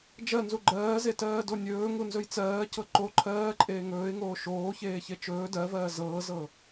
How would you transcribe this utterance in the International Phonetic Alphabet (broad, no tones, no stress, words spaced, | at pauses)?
d͡ʒɜnzu ɡ͡ǃɜːzetɜːdo nʲɵːŋunzɵj t͡sɜːcɤ ǃo ǃʰɜːǃʼeː ŋɵːɪ̯ŋoː ʃoːçeːçe t͡ʃɵː dɜvɜː zɤːzɤ